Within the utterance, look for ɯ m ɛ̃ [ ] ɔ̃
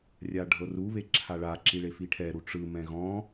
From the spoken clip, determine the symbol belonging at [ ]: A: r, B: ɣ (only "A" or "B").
B